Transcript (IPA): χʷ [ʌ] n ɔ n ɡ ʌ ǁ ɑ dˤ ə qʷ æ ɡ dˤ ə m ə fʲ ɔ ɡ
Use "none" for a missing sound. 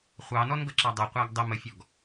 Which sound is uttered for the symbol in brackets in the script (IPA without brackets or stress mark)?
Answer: ɑ